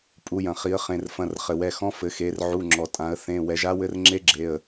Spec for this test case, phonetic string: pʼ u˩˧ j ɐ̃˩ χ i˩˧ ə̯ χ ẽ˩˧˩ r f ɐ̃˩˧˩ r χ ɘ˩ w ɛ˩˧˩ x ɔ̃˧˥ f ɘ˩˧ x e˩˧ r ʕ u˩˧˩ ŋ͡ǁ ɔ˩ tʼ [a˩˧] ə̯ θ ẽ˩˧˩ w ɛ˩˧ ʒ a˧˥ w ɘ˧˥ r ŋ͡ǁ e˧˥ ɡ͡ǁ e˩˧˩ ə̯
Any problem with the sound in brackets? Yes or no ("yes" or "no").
yes